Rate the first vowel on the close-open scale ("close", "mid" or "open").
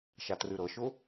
open